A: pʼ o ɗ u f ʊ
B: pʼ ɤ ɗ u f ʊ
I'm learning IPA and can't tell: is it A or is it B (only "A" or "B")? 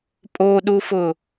A